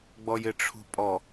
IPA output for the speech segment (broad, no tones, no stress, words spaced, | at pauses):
ɡ͡bɔjɪʈ͡ʂʰṳpʼɔ